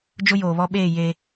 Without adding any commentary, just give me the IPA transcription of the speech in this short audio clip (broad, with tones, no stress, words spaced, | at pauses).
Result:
d͡ʒʊ˦joː˨βɔ˦ɓeː˦˨ je˦